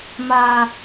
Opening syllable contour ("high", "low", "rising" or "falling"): low